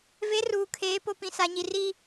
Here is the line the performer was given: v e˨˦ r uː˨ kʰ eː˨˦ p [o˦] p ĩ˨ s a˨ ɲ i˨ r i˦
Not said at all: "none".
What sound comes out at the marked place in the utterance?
o˨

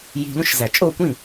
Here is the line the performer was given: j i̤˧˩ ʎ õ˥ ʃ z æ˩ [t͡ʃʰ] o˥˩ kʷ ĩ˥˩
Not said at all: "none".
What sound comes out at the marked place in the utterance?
t͡ʃʼ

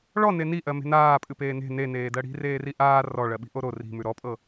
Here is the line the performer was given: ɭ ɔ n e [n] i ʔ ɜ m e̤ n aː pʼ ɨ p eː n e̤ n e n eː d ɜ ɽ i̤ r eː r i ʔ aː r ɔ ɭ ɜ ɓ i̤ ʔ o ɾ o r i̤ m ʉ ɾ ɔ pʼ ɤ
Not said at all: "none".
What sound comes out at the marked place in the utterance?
n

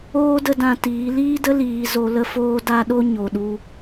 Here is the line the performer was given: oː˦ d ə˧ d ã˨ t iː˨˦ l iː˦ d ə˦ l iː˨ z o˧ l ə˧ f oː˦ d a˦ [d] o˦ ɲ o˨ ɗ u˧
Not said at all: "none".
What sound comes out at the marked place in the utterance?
ɗ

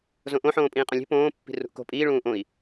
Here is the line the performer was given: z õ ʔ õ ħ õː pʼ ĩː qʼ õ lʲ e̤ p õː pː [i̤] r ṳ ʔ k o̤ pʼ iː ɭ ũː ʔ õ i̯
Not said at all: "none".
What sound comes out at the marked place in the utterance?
i̤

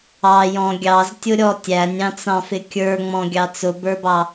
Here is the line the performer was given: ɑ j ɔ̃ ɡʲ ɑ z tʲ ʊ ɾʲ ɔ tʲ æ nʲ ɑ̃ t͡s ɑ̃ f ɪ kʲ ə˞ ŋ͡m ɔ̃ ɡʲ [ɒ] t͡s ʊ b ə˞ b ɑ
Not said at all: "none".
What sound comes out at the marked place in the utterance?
ɑ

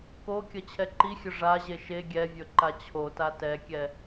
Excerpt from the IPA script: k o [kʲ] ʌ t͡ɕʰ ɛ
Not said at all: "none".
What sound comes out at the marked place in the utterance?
kʲ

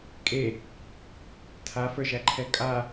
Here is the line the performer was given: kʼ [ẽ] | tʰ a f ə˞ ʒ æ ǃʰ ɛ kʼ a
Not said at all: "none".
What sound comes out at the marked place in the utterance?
e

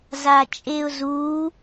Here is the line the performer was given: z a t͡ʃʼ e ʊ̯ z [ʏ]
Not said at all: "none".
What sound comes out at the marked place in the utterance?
u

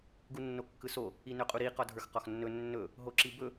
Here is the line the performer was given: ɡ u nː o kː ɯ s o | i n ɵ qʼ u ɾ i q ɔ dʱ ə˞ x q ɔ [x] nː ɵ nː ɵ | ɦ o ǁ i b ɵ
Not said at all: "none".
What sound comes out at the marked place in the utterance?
x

